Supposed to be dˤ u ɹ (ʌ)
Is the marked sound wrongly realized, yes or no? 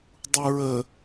yes